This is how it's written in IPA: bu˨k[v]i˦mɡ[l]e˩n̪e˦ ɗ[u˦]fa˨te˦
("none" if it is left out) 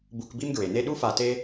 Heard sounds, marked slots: b, ɹ, u˦

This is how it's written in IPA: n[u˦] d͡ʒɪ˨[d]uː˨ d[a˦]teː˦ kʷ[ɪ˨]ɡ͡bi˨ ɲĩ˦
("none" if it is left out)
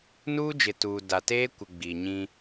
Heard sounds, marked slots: uː˦, t, a˨, ɪ˨

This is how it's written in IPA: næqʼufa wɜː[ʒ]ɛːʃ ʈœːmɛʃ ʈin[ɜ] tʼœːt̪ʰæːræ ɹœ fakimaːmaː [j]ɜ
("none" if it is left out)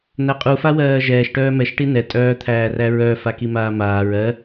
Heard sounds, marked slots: ʒ, ɛ, ɹ

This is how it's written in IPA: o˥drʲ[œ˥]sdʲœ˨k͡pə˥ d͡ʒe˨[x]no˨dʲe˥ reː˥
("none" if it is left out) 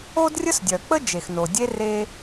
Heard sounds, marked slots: ə˥, x

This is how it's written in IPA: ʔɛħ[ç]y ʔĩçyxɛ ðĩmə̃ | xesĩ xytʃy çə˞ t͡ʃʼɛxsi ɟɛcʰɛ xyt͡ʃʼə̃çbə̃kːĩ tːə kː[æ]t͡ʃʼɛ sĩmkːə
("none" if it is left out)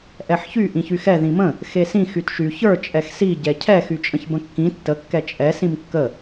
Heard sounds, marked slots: ç, ɛ

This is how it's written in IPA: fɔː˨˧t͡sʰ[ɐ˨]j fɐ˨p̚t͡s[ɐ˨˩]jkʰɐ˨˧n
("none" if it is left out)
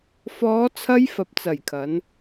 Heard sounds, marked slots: ɐ˧, ɐ˨˩

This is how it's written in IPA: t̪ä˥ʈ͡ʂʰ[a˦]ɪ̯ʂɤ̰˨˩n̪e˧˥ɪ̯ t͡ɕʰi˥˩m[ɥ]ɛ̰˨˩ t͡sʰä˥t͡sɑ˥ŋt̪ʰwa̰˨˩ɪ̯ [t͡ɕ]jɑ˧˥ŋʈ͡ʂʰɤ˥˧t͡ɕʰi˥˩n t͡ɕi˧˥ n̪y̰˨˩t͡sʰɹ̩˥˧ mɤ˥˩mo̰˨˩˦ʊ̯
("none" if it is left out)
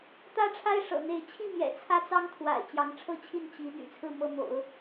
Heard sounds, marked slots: a˥, j, t͡ɕ

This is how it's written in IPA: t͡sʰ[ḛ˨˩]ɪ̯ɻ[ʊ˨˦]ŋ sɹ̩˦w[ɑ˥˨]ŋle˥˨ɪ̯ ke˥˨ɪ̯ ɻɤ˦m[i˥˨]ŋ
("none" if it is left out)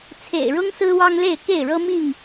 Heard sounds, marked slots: ḛ˨˩, ʊ˦, ɑ˦, i˥˨

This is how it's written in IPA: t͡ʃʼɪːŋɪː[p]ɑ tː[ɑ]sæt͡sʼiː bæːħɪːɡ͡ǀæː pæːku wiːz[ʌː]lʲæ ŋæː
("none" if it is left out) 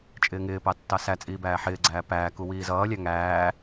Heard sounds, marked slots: p, ɑ, ʌː

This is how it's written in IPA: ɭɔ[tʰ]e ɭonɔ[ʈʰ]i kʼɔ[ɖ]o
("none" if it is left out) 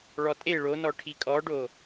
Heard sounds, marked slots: tʼ, ʈʰ, ɖ

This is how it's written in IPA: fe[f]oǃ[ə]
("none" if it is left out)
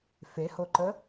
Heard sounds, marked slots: h, ə

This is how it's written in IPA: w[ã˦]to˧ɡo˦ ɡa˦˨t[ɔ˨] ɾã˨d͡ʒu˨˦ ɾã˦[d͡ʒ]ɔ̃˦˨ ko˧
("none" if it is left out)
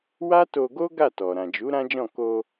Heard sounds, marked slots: a˦, ɔ˨, d͡ʒ

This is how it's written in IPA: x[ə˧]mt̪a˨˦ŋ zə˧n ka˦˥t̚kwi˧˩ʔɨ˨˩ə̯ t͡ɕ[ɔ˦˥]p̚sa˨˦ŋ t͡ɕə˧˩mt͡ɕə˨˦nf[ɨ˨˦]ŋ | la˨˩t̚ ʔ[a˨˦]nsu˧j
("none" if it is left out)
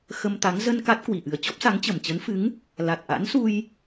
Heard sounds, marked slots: ə˧, ɔ˦˥, ɨ˨˦, a̰˧˥

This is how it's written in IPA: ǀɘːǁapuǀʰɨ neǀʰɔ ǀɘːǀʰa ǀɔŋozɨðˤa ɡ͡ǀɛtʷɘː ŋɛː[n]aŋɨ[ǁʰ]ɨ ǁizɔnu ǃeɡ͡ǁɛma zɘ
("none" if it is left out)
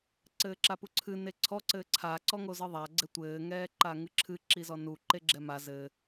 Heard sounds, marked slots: ǃ, ǁʰ

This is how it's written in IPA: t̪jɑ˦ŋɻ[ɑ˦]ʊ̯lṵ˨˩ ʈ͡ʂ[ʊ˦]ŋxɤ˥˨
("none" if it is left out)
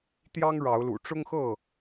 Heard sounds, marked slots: ɑ˨˦, ʊ˦

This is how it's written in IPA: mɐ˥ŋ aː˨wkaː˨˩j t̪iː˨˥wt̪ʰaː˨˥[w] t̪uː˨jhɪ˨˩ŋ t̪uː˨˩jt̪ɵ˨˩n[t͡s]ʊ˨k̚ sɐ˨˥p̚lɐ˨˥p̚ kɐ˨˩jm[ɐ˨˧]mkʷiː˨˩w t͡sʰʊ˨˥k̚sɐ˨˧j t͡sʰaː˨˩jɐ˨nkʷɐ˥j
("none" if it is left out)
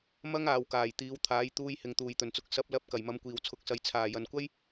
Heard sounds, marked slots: j, t͡s, ɐ˨˧

